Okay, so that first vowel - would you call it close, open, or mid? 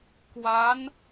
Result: open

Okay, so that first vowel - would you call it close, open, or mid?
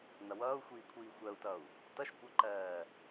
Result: mid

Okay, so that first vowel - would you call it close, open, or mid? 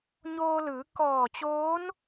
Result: mid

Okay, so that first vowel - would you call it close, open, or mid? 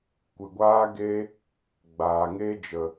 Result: close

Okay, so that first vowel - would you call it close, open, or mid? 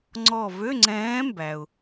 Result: mid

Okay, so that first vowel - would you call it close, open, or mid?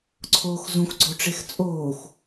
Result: mid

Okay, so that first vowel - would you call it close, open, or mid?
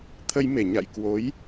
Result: mid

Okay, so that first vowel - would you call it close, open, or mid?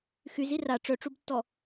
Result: close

